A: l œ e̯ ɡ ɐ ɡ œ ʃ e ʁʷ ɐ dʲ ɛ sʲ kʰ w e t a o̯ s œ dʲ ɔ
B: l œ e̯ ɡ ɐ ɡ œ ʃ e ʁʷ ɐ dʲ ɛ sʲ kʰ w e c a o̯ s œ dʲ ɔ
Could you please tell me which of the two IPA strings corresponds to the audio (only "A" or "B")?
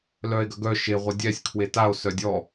A